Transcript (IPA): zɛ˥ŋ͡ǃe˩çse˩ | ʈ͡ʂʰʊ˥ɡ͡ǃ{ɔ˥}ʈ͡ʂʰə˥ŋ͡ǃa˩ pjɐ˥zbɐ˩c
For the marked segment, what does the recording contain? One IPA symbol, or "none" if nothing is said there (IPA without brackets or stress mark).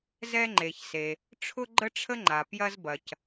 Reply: ə˥